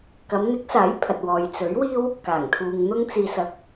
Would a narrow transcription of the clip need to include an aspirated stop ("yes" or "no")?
yes